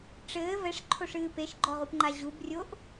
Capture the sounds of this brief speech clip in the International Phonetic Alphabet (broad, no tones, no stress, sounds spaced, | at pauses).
ʈ͡ʂ ɘː v ɛ ʂ ǃʰ o ʂ ɨː p e ʃ ɡ͡ǃ ɔ ʁ u p ŋ͡ǃ a ʑ u b rʲ o ʔ